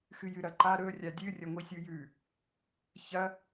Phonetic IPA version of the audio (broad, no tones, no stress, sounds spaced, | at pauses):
x ɨ j ɨ ɾ ɐ ǃ a ɾ ɵ rʲ a dʲ ɨ rʲ ɐ ŋʷ i sʲ u j ʉ | ç ɐ